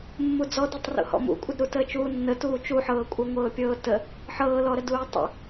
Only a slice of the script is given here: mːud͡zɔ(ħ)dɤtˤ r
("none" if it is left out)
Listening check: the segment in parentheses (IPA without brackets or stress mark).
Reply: none